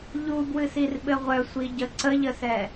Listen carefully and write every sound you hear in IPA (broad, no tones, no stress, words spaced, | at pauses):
ʎubwɨsirɓɘ ʁʷœsʷiɟə ǀəʎəsɛ